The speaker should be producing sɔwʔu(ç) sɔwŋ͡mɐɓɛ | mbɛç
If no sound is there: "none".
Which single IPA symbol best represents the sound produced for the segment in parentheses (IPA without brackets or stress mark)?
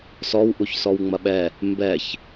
ç